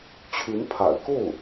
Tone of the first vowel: rising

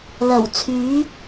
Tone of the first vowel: low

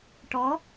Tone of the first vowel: rising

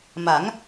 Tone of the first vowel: rising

